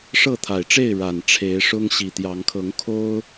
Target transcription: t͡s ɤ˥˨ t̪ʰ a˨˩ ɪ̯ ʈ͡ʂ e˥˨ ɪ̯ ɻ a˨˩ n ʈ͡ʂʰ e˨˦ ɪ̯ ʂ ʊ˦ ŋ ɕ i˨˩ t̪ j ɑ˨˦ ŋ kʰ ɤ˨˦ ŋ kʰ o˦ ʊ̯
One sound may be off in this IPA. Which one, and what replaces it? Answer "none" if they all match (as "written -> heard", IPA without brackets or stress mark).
t͡s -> ʂ